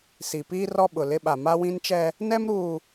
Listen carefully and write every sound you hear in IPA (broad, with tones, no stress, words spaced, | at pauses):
si˨piː˦ rɔ˦ɓʊ˨lɪ˦ɓa˨ ma˦wĩ˦nt͡ʃɛ˦ | nɛ˦mɾuː˨